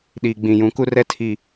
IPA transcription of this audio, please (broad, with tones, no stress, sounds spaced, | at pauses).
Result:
ɗ iː˨ ɡ͡b ĩ˨ j ũ˨˦ k u˦ r ɛ˦ tʰ i˦˨